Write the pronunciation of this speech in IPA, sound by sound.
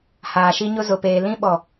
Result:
h aː˨ ʃ i˦ ɲ ʊ˦ z ʊ˨ p eː˨ l ĩ˦ ɓ ɔ˨

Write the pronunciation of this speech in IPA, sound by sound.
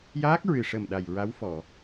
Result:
j aː˦˥ k̚ ɹ ɨ˨˩ ʂ ə˨˩ m ɗ a˨˩ j ɹ a˧˥ w f ɔ˨˩˨

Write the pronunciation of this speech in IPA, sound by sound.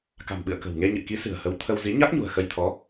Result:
k a̤˨˩ m ɓ ɨ̰˧˨ ə̯ k ə̤˨˩ w ŋ e˧ ɲ ɨ̰˧˨ k i˨˦ s ɨ̤˨˩ ə̯ h ə˨˦ w t̪ʰ ə˧ w z i˨˦ ɲ a˦˥ k̚ ɲ ṳ˨˩ ə̯ x ə˧ j t̪ʰ ɔ˨˦

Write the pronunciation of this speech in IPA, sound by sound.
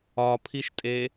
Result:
ɒ pʰ i ʃ tʼ e

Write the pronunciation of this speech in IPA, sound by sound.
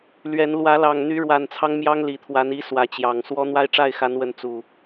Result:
l ɥ ɛ˨˦ n l w ä˨˦ l ɑ˨˩ ŋ n̪ y˨˦ ɻ w a˨˩ n t͡sʰ ɑ˦ ŋ m j ɑ˦ ŋ l i˨˩ t̪ʰ w a˨˦ n i˨˦ s w ä˨˦ t͡ɕ j ɑ˨˩ ŋ s w ɔ˦ n̪ w a˦ ɪ̯ ʈ͡ʂ a˥˨ ɪ̯ x a˨˦ n w ə˨˦ n t͡s u˨˩

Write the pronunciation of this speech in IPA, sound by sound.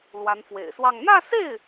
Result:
l w a˧˥ n f w ḛ˨˩ ɪ̯ s w ɑ˥˧ ŋ n̪ ä˥˧ s e˥˩ ɪ̯

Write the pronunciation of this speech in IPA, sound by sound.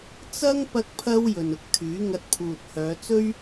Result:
t͡s ɐ˥ ŋ p ɐ˥ k̚ pʰ ɐ˥ w j ɵ˨ n ʊ˧ k̚ t̪ʰ yː˨˥ ŋ ɐ˧ t̚ pʰ uː˨ t̚ h œː˨˧ t͡s ɵ˥ ɥ

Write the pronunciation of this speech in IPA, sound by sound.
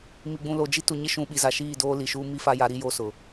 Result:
m i˨ ɡ͡b ũ˨ l o˨ d͡ʒ i˦ t u˨ ɲ ɪ˦ ʃ ũ˨ ɓ i˨ z a˨ ʃ iː˦˨ d oː˦ l i˨ ʃ uː˦ m i˦ f a˦ j a˨˦ ɾ i˦ j o˦ s ʊ˨

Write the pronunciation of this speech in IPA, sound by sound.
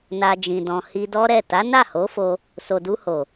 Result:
n a˧ d͡ʒ ĩ˨ d ɔ̃˨ h i˧ d ɔ˦ ɾ ɛ˦˨ t a˨˦ n a˦˨ h o˨˦ f o˧ | s o˨ d u˧ h o˨

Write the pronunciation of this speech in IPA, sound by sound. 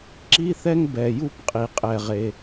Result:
ǁ i˥ θ ɛ˥ ŋ b ɛ˩ j u˥ p qʼ i˩ qʼ ɛ˩ ʁ e˩

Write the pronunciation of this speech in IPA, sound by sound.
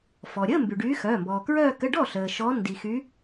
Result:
f ɔ˩ ɾʲ əː˧˥˧ m b y˩ ɖ yː˨˦ x œː˩˧˩ m b ɔː˩ k ɹ œː˥˧ k ə˧˥˧ ɖ ɔ˥˩ ɬ əː˩ ʃ ɔ˨˦ n d i˩ x y˨˦

